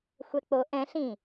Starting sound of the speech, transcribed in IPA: xʷ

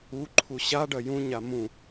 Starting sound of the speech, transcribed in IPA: u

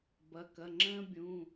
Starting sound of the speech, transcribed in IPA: b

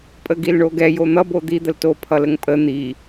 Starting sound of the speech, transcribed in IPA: pʼ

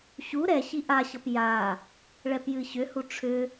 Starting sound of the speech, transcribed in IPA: ɕ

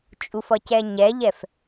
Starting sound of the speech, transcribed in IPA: t͡ʃʼ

